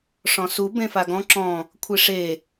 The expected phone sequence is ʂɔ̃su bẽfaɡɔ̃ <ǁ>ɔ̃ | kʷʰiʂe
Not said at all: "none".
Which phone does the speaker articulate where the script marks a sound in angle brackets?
ǁ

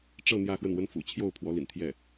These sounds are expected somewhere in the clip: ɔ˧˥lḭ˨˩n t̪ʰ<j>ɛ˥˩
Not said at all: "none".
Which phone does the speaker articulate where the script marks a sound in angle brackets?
j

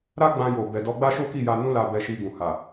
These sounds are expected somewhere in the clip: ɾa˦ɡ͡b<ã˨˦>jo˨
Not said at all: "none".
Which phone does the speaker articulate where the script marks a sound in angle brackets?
ã˧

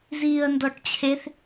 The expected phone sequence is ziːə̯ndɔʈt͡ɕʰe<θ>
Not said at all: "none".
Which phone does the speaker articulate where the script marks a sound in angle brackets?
θ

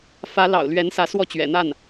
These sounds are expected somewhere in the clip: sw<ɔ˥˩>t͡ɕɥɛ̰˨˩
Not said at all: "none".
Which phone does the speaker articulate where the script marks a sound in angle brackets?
ɔ˥˩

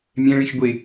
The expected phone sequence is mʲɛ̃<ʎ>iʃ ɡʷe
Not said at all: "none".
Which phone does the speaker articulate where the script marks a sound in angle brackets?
ɭ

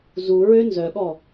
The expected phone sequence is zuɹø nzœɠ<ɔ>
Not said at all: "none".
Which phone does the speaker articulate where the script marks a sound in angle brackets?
ɔ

